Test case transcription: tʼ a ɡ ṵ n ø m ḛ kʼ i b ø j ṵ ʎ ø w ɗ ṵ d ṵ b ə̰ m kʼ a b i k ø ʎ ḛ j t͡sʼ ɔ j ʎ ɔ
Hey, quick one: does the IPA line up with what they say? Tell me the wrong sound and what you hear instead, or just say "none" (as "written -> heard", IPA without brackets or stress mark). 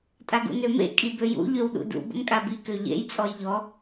none